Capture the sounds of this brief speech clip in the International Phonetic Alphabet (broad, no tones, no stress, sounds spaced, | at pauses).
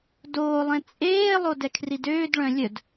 d oː lˠ ẽ t͡sʼ eː lˠ o d ɛ kʰ r i d øː d ɭ œ̃ lʲ œ d